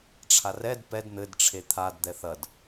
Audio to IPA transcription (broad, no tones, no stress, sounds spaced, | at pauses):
ʈ͡ʂʰ a r ɛ d p ɛ d n̪ ɘ d ʈ͡ʂʰ e t̪ʰ a d d̪ ɛ θ ɐ d